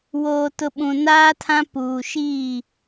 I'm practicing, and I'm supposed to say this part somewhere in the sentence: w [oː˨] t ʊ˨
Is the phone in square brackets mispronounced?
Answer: no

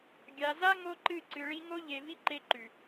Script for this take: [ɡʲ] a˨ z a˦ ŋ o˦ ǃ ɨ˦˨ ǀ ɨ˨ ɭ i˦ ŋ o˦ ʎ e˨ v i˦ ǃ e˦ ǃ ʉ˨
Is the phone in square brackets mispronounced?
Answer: no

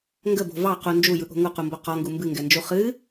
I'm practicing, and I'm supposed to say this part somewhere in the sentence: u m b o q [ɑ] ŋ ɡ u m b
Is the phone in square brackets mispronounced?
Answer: yes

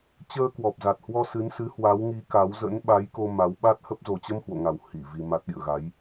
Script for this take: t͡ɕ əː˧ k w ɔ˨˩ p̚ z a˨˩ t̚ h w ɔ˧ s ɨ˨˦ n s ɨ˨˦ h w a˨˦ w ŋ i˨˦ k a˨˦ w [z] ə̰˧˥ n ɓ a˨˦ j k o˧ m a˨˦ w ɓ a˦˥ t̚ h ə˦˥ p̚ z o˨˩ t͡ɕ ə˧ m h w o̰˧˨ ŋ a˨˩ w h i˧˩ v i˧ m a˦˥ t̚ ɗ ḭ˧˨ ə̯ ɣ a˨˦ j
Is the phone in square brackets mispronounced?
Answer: no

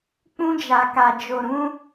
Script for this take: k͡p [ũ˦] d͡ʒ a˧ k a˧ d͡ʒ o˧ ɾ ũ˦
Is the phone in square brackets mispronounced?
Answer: no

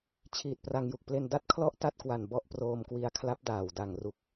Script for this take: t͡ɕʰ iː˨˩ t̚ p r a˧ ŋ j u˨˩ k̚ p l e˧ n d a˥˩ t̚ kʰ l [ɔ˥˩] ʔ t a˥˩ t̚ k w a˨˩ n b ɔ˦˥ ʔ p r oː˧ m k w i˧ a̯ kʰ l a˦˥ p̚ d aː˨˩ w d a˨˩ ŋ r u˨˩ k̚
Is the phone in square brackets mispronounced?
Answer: no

